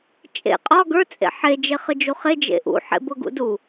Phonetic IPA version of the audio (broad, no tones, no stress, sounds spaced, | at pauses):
t͡ʃʼ ḛ qʼ ɒ ɡ ə˞ t͡sʼ ḛ ħ e d͡ʒ e χ ɨ d͡ʒ u χ e d͡ʒ ḛ ʔ ṵ ħ ḛ b ʊ ɡ ṵ d u